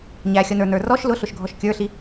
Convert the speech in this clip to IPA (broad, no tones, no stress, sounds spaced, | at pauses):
ɲ æ xʲ ʌ n ə˞ n ə˞ r ɔ ʃ l ʊ ɬ ʊ ʃ ɡʱ ɔ ʃ kʲ ə˞ ɬ i